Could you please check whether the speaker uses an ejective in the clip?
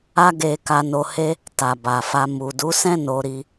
no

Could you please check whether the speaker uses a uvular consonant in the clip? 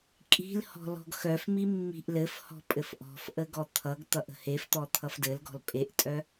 no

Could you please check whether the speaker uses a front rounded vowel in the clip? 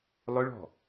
no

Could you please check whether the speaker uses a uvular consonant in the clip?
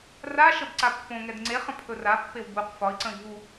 yes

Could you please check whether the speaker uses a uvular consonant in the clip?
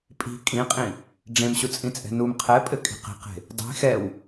yes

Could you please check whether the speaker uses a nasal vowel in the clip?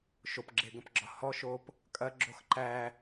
yes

